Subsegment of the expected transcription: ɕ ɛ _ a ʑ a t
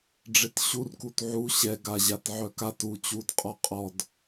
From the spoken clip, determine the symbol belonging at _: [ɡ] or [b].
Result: ɡ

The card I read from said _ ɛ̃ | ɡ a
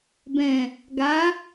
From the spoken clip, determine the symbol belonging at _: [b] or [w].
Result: b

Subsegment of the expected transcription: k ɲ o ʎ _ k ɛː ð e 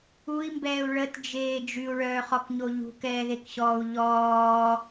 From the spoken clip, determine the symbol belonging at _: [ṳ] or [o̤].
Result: ṳ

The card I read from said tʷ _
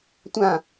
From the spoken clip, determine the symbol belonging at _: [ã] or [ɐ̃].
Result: ã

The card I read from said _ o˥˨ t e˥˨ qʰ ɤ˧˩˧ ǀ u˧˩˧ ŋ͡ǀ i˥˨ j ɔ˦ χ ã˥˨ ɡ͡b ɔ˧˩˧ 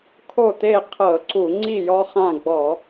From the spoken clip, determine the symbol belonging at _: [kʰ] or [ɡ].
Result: kʰ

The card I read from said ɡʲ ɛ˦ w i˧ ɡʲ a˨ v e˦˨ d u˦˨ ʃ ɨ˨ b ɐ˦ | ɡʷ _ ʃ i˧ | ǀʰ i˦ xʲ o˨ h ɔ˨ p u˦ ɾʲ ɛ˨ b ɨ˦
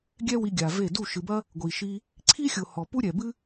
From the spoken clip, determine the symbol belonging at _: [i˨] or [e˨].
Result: i˨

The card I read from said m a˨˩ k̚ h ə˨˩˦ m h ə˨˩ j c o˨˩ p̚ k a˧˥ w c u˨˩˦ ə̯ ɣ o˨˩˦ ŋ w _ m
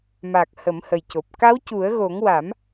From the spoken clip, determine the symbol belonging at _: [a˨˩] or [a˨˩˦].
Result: a˨˩˦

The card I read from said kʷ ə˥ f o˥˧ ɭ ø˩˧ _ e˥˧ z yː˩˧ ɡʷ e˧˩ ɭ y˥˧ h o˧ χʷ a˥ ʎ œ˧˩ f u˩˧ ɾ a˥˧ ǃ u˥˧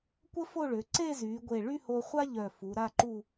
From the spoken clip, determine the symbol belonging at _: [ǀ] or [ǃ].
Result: ǀ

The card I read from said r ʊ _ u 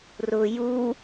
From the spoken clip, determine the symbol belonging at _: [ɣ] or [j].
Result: j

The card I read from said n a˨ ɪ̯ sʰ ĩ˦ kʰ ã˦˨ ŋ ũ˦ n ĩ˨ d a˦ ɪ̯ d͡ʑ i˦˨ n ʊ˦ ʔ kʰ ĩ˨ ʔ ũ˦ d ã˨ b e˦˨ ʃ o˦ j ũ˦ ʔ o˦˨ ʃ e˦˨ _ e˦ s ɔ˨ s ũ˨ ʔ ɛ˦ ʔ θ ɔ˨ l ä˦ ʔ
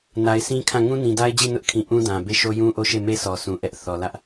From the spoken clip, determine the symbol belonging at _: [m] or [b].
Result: m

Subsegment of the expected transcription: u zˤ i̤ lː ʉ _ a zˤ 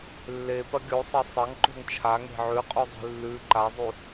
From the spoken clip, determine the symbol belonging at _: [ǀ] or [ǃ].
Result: ǃ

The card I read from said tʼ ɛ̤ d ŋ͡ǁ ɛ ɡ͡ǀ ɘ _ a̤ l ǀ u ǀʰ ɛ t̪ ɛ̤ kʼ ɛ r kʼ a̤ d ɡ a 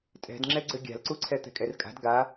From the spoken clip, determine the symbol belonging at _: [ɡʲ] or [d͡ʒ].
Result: ɡʲ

